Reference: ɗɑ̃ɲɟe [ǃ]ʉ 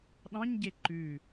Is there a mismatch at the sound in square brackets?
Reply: no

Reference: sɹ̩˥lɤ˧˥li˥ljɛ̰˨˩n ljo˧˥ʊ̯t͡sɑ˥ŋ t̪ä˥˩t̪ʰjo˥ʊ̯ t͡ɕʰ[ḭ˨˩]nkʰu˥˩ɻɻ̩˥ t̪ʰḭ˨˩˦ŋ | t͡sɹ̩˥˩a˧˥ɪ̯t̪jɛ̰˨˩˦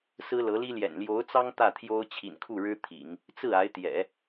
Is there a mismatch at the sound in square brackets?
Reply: no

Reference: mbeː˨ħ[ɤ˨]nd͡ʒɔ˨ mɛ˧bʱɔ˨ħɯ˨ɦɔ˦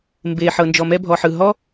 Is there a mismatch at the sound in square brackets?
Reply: no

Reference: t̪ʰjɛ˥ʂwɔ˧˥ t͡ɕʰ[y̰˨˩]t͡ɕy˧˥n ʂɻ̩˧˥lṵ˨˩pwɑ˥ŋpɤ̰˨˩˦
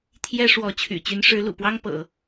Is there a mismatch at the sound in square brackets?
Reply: no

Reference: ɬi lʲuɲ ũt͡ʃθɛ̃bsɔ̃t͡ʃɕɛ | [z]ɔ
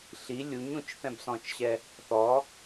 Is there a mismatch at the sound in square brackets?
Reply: yes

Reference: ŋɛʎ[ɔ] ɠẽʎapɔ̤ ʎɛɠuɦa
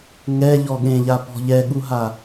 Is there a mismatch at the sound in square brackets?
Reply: no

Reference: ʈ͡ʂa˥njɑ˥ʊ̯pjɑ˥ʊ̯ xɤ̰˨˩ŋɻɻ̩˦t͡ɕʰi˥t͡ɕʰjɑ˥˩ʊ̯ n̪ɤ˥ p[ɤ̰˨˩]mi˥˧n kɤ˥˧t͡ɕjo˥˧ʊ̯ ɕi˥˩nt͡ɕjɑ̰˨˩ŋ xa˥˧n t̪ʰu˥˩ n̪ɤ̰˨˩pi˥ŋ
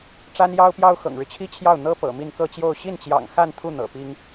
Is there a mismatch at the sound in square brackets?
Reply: no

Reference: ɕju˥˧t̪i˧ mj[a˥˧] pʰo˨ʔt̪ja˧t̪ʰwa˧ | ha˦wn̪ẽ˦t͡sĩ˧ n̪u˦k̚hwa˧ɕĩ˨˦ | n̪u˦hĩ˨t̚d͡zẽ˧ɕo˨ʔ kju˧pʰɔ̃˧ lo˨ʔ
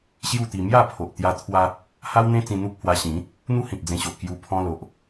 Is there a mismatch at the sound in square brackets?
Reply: no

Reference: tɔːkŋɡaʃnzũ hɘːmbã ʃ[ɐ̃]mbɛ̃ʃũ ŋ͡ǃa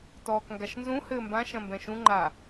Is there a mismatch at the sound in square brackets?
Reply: no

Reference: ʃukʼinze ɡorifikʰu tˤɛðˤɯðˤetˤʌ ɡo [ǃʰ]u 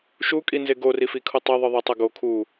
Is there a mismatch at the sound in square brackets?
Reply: yes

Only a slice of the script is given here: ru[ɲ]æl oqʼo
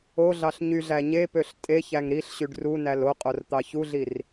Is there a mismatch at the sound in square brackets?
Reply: yes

